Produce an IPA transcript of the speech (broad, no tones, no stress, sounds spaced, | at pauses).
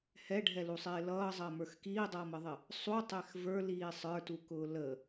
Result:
h ɛ ɖʱ ɛ l u sˤ ɪː l ʌː zˤ əː m ə˞ x k iː dˤ ʌː m ə ðˤ ɪ | sˤ u tˤ ɛ x v ə˞ l iː sˤ ə˞ t u k ʊː l ə